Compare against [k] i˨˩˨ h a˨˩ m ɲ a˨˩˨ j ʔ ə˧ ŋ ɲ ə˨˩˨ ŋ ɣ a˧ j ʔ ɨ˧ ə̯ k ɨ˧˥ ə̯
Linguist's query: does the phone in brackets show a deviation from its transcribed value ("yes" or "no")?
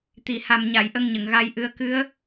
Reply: yes